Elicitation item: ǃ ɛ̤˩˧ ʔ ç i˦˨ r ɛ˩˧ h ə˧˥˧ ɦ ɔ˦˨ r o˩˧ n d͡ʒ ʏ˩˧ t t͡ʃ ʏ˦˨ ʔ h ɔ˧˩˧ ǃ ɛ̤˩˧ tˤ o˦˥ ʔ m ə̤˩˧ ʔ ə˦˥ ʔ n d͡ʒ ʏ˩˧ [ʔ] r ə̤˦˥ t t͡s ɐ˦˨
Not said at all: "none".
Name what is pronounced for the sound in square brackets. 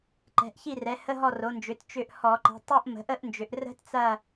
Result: ʔ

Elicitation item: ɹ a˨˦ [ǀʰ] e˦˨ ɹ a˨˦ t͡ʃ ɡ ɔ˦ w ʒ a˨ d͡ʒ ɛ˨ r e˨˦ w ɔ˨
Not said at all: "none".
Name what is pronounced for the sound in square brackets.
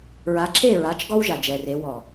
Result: ǁʰ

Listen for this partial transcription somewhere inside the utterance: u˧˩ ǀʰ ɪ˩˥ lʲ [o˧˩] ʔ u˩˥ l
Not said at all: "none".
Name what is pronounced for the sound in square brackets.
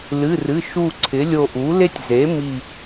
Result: o˧˩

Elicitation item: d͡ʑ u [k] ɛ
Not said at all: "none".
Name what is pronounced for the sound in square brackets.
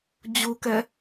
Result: k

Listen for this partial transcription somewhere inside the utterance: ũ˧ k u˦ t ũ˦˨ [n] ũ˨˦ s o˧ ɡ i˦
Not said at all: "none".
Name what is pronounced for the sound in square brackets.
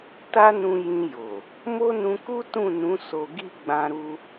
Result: n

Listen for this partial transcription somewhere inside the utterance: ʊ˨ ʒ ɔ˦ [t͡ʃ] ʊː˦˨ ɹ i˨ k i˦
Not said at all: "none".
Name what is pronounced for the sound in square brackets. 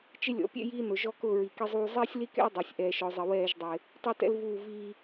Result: k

